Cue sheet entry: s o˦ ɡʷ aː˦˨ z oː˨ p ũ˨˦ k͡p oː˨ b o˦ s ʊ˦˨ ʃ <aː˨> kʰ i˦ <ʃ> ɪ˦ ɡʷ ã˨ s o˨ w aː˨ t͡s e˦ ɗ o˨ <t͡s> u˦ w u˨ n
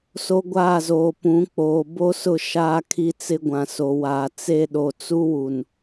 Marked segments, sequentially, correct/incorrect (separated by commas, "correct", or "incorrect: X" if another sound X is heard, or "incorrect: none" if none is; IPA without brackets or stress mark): incorrect: aː˦, incorrect: t͡s, correct